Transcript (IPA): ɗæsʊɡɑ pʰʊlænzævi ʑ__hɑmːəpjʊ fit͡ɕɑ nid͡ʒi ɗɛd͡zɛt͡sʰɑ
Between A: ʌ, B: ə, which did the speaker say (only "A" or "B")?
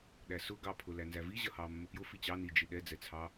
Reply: A